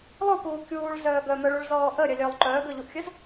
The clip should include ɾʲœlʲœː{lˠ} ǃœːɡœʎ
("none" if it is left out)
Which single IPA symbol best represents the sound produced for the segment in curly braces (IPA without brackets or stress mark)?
lˠ